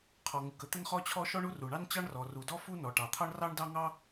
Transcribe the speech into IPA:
qʰ ɔ˩ ŋ u˩ k ə˥ t̪ ə˥ n χ ɔ˥ t͡ɕʰ ɔ˥ ʃ ɔ˥ ɳ u˥ r u˩ ɳ ɑ˥ n t͡ɕ ɑ˥ ɳ r ɔ˩ r u˩ d ɔ˥ f u˥ n ɔ˩ ʈ ɑ˩ t̪ʰ ɑ˥ ɳ r ɑ˥ ɳ d ɑ˥ ŋ ɑ˥

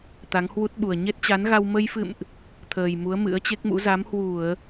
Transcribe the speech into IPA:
t̪ a˨˦ ŋ h w u˦˥ t̚ ɓ u˨˩ ə̯ ɲ e˦˥ t̚ t͡ɕ a˨˦ n ɣ a˧ w m ə˧ j f ɨ̰˧˨ m ʔ | t̪ʰ əː˨˩ j m u˨˦ ə̯ m ɨ̰˧˥ ə̯ t͡ɕ e˦˥ k̚ m ṵ˧˥ z a˨˦ m h w u˧˩˨ ə̯

